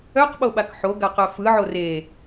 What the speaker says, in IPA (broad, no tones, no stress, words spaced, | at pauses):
œqɓoɓak ħoɡaqœ fɯʕo re